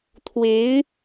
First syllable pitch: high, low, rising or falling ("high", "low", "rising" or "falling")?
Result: rising